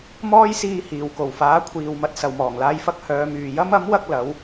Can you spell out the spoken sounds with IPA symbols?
m ɔː˥ j s iː˧ h iː˨˩ w k o˨˩ w f aː˨˥ kʷʰ iː˨ w m ɐ˨ t̚ s ɐ˨ w m ɔː˨˩ ŋ l aː˧ j f ɐ˧ k̚ h œː˨˧ m yː˨ j ɐ˥ m ɐ˨˥ m w ɐ˧ k̚ l ɐ˨˥ w

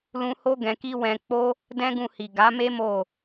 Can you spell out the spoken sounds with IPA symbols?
l ũ˧ h o˦ ɡ ɛ̃˧ k i˦ w ɛ̃˧ k͡p o˦ | d ɛ̃˦ ɡ ũ˧ h i˨ ɡ a˨˦ m e˦ m o˦˨

